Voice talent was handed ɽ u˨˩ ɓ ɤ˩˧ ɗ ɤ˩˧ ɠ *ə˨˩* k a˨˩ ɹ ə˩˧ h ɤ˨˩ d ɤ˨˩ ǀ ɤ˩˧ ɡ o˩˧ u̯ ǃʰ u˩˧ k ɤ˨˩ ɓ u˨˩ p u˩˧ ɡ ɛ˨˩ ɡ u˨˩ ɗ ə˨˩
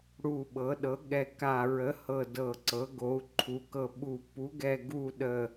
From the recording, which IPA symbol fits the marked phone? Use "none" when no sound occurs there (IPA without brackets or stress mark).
ɛ˨˩